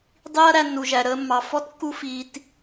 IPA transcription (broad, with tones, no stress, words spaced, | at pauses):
dˤiː˦ɐ̯ɾæ˧nːu˨ʒæ˨ ɾəː˧ mːɑ˨ fɔ˦tkːu˦fiː˧t